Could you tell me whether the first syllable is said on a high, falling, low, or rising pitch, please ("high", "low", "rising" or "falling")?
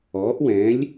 rising